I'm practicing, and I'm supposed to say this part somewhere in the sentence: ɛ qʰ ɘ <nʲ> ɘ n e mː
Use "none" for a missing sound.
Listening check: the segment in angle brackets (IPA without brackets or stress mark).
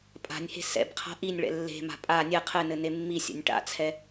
n